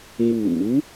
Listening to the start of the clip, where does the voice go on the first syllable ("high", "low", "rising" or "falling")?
low